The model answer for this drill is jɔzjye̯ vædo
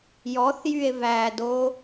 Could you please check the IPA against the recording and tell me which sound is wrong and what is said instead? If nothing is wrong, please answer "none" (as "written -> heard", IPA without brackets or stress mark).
z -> θ